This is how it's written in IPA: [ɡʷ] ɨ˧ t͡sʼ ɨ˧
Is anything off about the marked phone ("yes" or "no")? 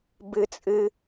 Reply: yes